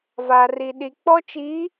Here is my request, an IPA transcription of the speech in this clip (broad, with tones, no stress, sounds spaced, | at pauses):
v a˨ r i˨ ɗ i˨ k͡p ɔ˦ t͡ʃ i˨˦